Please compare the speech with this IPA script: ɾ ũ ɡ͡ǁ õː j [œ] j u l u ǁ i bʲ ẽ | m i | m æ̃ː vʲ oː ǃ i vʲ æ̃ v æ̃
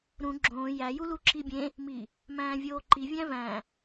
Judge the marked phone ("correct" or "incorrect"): incorrect